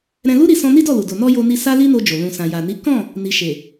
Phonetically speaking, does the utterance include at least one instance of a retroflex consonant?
no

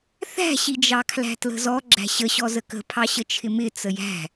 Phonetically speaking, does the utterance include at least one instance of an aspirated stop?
yes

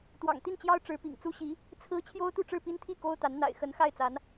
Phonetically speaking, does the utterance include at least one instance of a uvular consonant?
no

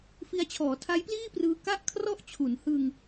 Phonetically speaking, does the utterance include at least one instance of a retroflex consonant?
no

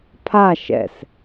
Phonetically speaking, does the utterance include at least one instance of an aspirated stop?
yes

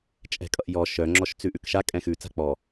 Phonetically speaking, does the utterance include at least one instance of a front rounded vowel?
yes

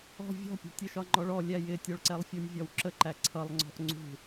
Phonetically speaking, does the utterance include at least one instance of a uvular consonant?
no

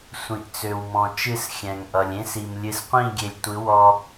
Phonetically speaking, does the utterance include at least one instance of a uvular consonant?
yes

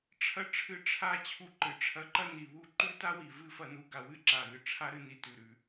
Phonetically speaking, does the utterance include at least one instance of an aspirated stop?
yes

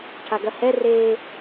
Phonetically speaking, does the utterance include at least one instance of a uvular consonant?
no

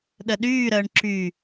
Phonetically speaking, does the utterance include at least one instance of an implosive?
yes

